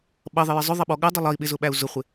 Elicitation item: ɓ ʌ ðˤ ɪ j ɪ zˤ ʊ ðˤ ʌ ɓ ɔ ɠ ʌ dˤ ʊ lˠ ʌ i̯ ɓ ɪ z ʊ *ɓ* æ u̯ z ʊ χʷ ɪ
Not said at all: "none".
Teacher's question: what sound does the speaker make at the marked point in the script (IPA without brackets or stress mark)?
ɓ